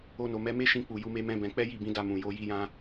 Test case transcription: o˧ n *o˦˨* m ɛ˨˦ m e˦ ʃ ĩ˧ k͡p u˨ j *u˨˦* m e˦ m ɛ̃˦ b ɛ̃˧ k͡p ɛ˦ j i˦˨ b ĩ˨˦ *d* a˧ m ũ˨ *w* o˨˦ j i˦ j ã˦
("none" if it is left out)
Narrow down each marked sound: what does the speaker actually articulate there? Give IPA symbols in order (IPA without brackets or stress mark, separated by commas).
o˨, u˨˦, d, j